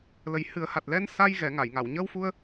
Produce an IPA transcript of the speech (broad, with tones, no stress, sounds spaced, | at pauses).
l ə˨˩ j h ɨ˨˩˦ ə̯ h a˨˩ t̚ l ɛ˧ n s a˧ j ɣ ɛ˨˩˦ ŋ a˨˩˨ j ŋ a˨˩˨ w ɲ əː˧ w f u˧ ə̯